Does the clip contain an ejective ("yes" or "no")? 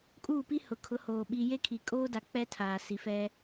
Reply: yes